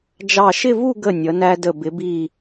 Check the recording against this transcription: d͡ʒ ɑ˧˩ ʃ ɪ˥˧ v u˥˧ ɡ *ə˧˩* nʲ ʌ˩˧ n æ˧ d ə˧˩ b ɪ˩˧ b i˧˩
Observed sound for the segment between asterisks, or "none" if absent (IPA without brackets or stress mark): ə˧˩